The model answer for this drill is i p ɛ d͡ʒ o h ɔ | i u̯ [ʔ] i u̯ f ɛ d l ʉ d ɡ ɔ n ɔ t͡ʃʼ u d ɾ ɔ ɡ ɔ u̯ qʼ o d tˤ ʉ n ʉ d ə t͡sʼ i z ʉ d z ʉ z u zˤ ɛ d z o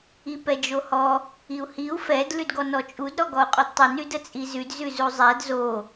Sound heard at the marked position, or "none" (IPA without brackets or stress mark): h